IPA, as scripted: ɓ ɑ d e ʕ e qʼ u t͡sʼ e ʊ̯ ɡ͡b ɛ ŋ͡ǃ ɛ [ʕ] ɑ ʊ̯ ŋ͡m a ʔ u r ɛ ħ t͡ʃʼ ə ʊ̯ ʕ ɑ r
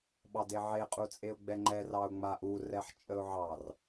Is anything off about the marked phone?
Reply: yes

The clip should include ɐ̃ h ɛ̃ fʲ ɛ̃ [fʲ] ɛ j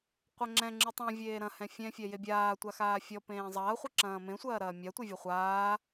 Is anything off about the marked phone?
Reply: no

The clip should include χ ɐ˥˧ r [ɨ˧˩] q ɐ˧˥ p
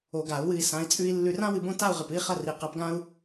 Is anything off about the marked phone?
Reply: yes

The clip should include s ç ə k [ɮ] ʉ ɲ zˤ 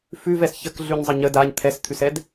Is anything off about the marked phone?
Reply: no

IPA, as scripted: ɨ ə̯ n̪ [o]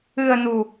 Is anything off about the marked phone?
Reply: yes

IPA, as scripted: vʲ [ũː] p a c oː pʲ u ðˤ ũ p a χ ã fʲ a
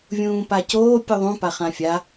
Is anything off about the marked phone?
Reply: no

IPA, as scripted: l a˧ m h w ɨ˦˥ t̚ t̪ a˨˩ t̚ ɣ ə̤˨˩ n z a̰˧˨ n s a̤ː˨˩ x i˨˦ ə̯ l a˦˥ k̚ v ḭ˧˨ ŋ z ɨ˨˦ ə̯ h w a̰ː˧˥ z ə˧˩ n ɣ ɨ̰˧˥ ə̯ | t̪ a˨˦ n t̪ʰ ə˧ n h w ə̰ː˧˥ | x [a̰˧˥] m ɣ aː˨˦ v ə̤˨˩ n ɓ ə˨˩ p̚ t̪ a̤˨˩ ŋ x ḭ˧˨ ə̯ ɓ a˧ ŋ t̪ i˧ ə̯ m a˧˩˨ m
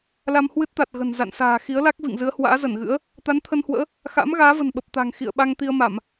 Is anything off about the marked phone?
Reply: no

